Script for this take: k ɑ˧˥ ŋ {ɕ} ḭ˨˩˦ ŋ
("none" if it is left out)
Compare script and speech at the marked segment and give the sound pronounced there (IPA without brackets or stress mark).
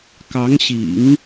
ɕ